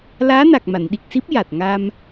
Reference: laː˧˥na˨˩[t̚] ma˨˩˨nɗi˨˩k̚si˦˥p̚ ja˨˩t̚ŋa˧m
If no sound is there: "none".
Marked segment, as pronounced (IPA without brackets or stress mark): k̚